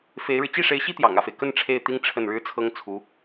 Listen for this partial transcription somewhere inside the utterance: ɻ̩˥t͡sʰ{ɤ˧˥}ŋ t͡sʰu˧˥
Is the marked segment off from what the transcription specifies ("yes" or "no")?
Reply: yes